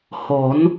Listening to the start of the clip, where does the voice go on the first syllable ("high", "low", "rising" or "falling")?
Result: rising